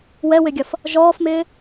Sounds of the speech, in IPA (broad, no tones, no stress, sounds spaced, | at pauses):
w ɛ w ɪ ɡʲ ɐ f | ʒ ɔː f m ɪː